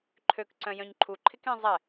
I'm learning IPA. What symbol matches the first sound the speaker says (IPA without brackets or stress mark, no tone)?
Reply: ǃʰ